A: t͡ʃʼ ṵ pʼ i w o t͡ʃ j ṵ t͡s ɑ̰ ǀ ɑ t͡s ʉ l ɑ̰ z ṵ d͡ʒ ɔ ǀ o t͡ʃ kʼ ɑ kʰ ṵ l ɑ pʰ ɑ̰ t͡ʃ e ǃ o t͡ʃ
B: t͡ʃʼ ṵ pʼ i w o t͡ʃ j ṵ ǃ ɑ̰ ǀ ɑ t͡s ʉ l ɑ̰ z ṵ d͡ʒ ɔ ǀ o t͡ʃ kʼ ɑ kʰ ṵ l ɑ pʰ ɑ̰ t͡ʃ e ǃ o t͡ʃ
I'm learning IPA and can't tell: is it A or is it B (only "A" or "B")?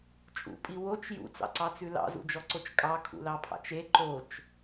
A